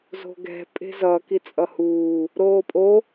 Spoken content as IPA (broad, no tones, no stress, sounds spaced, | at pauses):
z o̤ ɡ ɛ̤ pʼ e̤ z ʌ k i t͡sʼ ʌ h uː | ɾ oː pʼ o